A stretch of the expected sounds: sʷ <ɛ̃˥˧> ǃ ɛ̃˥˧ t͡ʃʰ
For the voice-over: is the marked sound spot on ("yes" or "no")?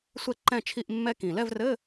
no